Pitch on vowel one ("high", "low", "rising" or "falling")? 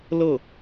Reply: falling